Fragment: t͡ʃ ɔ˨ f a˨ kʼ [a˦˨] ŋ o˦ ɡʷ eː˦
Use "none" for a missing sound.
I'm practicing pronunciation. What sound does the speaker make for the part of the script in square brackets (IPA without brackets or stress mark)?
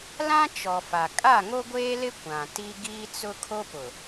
a˦˨